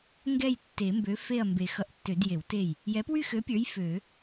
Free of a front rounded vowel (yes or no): no